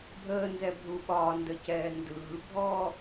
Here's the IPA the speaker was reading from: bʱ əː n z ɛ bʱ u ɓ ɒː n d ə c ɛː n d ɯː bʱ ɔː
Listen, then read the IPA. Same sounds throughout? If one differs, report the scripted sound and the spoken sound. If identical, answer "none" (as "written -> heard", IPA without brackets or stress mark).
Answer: none